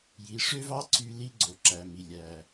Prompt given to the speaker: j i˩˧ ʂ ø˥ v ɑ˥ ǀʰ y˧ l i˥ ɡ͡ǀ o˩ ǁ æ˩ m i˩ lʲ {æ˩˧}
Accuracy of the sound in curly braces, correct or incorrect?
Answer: incorrect